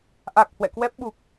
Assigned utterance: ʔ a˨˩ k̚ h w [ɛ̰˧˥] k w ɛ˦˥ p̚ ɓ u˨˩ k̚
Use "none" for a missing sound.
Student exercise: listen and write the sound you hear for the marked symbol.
ɛ̰˧˨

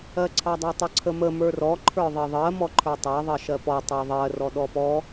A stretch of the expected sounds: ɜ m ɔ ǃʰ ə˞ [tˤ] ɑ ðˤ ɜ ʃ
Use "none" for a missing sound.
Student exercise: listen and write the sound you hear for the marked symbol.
tˤ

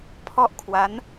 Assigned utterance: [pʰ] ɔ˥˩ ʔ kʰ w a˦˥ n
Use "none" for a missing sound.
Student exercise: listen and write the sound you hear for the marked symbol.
pʰ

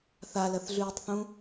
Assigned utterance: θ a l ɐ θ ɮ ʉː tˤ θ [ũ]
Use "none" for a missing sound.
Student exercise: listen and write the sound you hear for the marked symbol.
ũ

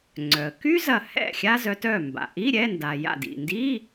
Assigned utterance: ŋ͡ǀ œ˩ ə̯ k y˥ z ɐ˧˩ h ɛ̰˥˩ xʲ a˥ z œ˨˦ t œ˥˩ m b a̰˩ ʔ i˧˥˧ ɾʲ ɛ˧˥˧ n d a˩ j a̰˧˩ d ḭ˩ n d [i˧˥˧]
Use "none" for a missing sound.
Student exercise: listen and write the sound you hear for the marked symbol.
i˧˥˧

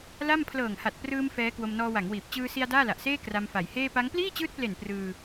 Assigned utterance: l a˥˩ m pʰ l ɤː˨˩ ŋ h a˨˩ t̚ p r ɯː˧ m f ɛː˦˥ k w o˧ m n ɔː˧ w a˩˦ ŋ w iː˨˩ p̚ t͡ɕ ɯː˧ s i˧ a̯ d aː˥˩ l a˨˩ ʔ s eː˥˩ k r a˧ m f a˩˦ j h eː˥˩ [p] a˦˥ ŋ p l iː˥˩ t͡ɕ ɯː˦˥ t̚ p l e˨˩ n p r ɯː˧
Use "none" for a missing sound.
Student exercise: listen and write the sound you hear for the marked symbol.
p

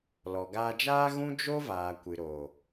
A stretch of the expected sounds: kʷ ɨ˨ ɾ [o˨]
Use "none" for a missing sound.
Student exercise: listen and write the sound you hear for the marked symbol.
o˨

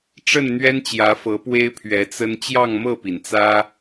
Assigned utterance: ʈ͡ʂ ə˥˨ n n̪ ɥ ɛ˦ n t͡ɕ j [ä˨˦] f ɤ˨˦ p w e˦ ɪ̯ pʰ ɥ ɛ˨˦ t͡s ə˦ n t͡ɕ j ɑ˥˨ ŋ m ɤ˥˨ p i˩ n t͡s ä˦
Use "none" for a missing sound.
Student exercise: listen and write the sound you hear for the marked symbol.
ä˨˦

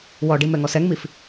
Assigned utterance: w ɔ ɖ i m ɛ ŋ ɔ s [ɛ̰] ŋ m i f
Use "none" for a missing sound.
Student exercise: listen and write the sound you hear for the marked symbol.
ɛ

